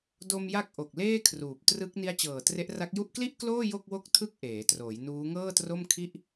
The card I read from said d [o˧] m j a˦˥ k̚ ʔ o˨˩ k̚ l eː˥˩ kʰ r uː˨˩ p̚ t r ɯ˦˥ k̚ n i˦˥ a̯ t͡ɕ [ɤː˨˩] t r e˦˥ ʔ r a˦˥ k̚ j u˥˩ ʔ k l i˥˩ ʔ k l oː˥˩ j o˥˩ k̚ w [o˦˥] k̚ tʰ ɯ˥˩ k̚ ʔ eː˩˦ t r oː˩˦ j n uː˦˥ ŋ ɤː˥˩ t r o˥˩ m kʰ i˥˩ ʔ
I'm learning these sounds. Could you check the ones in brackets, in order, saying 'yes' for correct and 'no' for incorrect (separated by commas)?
yes, yes, no